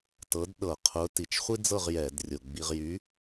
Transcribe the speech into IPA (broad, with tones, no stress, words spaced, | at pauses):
tɤ˨˥dɗɤ˧˩˧ qʰʊ˨˥ ti˨˩t͡ʃ χʷi˥d͡zɤ˥˨ʁ jɛ˧˩˧drʲʊ˨˩ɡ͡bi˧ʁ jy˨˥